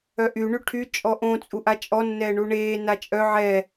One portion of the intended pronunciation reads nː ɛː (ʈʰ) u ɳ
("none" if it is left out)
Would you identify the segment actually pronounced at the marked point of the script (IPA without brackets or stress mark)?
ɳ